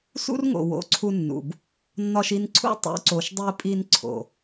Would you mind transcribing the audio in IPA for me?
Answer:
s ṵ˦ r ŋ o̰˨ w o̰˨˦ ǀʰ u˧ nː ṵ˨ b | nː ɒ˧ ʃ i˧ n ǀʰ ṵ˦ tˤ ṵ˨˦ ǀ o˨ ʃ dˤ i˧ pʼ i˧ n ǀʰ o̰˨

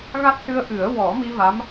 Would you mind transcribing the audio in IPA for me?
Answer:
ɣ a˦˥ t̚ s ɨ˧ ə̯ ʔ ɨ˨˩˦ ə̯ w ɔ˨˩˦ m i˧ v a˧˥ m

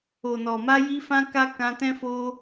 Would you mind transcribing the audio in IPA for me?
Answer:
o˨ n ɔ˨ m a˧ j i˦ f ã˦ k a˦ k ã˧ t ɛ̃˦ f o˦

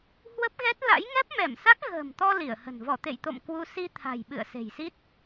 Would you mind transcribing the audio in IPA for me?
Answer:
h w ə˦˥ p̚ ɣ ɛ˦˥ t̚ l a̰˧˥ j ŋ ɛ˦˥ p̚ m ɛ˧˩ m s a˦˥ k̚ ɣ ə̤ː˨˩ m t̪ ɔ˧ l i˧˩ ə̯ h ə̤˨˩ n v ɔ˧˩ t̪ ḛ˧˨ j t̪ o̰˧˨ m k w u˧ s i˧ t̪ʰ a̤˨˩ j ɓ ɨ̰˧˨ ə̯ s e̤˨˩ j s i˦˥ t̚

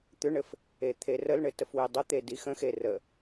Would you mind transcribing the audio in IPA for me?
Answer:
t̪ ʏ ɳ ɘ f | e t̪ʰ e r ə l ɳ ɘ t ə f w e dˤ ə t̪ e d i x ə̃ x e r ə

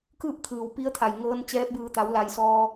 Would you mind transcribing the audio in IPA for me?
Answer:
k ɯː˥˨ p̚ t̪ʰ ɯː˩ w p i˧ ə̯ t̪ʰ a˩ j ŋ ɤː˧ n t͡ɕ ɛː˧ p̚ b ɯː˧˩ t̪ a˩˧ w l a˩ j s ɔː˧

